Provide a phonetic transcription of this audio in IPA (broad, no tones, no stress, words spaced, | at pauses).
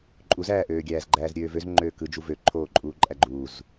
ǃʼuzæːʔøːɡʲæːz ɡ͡ǃæːzɾʲøːvøz ŋ͡ǃøːkɯd͡ʒu vø ǃʰoːǃʼuːǃʼæɡ͡ǃuːz